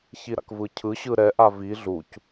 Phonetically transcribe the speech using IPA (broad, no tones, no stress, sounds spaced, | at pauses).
ç i ɾ a̰ k v ɯ cʰ ɯ ɕ ɯ ɾ ɛ ʔ a v i ɮ u c